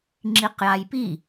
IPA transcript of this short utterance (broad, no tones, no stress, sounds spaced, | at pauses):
ŋ͡ǁ i q j a j p i